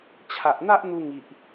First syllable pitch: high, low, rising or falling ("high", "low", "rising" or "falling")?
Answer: low